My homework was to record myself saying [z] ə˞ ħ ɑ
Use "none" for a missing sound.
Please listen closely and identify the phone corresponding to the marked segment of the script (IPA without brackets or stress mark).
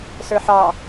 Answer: s